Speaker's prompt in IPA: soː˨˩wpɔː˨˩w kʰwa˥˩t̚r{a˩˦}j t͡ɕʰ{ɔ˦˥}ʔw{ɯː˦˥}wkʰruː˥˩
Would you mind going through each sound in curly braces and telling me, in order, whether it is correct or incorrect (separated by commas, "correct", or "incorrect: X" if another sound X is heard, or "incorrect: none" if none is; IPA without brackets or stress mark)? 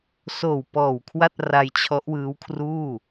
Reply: incorrect: a˧, correct, correct